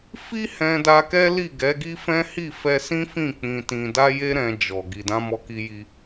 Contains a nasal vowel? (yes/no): yes